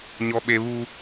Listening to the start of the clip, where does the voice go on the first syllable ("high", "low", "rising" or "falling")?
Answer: high